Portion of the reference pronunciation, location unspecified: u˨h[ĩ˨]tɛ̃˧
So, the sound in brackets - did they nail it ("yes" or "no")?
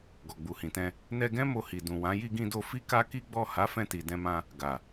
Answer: yes